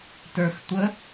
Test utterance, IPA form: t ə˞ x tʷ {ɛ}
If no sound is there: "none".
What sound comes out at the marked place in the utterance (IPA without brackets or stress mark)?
ə